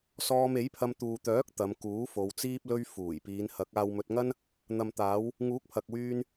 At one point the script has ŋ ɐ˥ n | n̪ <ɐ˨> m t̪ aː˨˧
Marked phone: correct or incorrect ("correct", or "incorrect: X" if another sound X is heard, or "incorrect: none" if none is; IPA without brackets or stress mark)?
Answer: correct